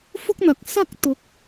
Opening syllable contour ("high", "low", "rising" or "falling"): high